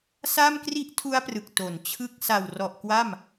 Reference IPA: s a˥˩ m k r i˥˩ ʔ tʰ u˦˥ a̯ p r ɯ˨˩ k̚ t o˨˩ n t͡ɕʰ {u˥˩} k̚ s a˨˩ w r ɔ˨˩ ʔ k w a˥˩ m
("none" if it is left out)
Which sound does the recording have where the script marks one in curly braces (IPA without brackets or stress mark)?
ɯ˥˩